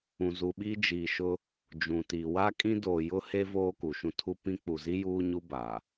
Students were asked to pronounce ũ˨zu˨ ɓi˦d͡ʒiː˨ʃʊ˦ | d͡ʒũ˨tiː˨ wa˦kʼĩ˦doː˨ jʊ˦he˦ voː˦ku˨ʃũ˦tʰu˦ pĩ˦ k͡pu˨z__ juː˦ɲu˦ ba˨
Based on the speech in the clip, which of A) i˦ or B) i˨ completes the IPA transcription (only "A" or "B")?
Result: A